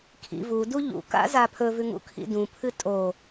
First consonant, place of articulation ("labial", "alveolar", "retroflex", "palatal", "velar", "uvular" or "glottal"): velar